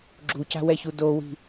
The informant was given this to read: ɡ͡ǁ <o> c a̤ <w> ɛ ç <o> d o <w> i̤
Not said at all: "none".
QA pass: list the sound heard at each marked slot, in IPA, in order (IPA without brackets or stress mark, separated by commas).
u, w, u, w